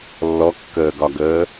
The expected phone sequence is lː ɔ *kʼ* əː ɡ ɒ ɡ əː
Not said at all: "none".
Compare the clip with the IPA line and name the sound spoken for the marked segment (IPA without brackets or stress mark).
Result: kː